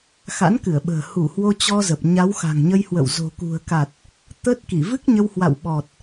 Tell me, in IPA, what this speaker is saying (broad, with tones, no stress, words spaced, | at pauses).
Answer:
xa̰˧˥nkɨ˧˩ə̯ɓə̤ː˨˩ hu˧˩ hwo˧t͡ɕɔ˧zə˨˩p̚ ɲa˨˦wxa̤˨˩ŋɲə˧jhwə̰˧˨w zo̤˨˩kṳ˨˩ə̯ka˨˩t̚ | t̪ə˦˥t̚ ki˧˩vɨ˦˥k̚ɲə˧whwa̰˧˨w ɓɔ˨˩t̚